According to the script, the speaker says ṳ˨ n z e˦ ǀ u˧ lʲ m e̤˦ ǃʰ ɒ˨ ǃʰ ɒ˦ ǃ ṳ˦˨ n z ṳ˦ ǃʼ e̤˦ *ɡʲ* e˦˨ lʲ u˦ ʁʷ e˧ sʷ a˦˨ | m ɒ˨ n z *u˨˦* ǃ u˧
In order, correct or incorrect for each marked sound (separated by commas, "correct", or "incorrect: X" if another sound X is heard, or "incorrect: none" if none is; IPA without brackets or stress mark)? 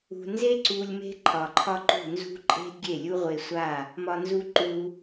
correct, incorrect: u˧